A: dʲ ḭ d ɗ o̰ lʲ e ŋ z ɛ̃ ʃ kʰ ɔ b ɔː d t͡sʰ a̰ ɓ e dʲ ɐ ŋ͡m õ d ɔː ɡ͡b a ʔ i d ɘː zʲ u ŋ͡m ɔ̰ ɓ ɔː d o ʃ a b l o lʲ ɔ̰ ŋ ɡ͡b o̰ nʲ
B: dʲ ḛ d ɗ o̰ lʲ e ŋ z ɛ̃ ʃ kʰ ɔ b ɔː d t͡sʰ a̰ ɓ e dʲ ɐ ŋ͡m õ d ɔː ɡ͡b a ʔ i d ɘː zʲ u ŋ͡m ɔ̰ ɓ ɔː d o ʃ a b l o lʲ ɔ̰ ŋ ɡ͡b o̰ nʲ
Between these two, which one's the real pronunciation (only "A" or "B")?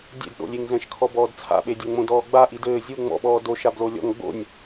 B